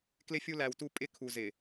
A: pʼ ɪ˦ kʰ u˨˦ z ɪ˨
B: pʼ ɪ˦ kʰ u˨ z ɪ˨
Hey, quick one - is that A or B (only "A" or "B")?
B